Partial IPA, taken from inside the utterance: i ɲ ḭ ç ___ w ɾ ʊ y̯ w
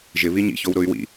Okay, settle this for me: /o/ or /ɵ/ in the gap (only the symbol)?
o